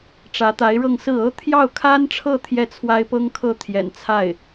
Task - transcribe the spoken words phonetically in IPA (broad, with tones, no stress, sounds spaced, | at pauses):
ʈ͡ʂ ä˧˥ t̪ a˧˥ ɪ̯ ɻ ɤ˥˧ ŋ s ɹ̩˥˩ ɤ˥ t̪ʰ j ɑ˥˩ ʊ̯ kʰ a˥ n ʈ͡ʂʰ ɤ˥˧ t̪ʰ j ɛ˥˩ t͡sʰ w a˥ ɪ̯ p ɤ˥ ŋ kʰ ɤ˥˩ t̪ʰ j ɛ̰˨˩ n t͡sʰ a˥˩ ɪ̯